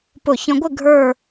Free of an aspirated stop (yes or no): yes